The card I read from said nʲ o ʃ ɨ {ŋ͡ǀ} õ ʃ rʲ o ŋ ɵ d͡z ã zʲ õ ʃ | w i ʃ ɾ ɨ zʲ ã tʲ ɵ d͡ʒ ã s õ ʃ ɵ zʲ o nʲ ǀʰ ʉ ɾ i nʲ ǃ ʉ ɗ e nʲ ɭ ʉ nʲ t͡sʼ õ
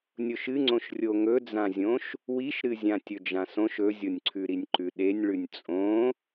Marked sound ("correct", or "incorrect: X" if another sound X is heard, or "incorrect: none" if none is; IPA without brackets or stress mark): correct